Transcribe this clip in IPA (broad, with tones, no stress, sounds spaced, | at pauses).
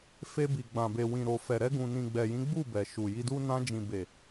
f e˧ b i˨ ɡ͡b ã˨ b e˨ w ĩ˨ ɾ o˨ f ɛ˨ ɾ ɛ˧ ɡ ũ˨ n ĩ˨ ɡ͡b ɛ˨ j ĩ˨˦ ɡ͡b u˦˨ b ɛ˨ ʃ u˨ j i˧ d u˦ n ã˧ d͡ʒ ĩ˨ b e˨